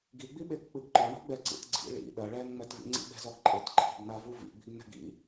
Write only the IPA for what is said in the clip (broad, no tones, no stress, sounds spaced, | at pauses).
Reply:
ɡ i ɡ͡b i ɓ e k k͡p ɨ ɡ ǃ ɔ ɳ o̤ ɡ͡b ɛ ǀ ḭ t ɡ͡ǀ ḭ ɭ ḭ ɗ ɐ ɭ ɛ n ŋ͡m ɛ t v ḭ ŋ͡ǀ ḭ ɓ ɛ̤ z ɔ ɡ ǃʼ ɘ t ǃʰ i̤ ɡ n a v u v ḭ ɡ͡b i̤ ɡ n ɛ̤ ɡ ḭ